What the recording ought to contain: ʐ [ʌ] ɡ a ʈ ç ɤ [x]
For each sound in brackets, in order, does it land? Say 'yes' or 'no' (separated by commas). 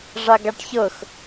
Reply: no, yes